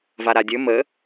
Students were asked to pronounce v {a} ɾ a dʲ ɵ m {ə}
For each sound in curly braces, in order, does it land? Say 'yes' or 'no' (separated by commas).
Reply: yes, yes